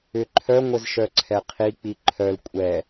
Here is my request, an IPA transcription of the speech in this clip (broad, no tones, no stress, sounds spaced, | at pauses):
ʏ ǃʰ œ ŋʷ ɘ z ʃ œ ǀʰ ɛ qʰ i k͡p i ǃʰ œ l kʷʼ ɛ